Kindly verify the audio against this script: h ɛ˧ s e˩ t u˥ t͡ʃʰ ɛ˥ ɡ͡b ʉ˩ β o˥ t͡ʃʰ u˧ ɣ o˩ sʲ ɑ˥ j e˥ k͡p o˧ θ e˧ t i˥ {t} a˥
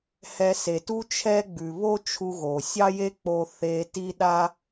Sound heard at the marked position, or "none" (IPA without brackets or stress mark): ɗ